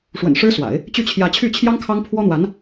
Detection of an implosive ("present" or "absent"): absent